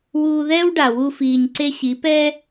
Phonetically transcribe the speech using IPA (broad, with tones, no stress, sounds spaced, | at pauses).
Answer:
w uː˧ ð ɛː˦ w ɖ a˨ w u˦ f iː˧ ɲ ǀ e˦ ɕ i˨˦ p ɛː˦